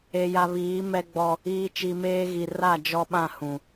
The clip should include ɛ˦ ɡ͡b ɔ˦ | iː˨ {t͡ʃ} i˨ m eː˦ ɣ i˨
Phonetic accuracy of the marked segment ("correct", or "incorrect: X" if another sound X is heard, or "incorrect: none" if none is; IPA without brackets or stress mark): correct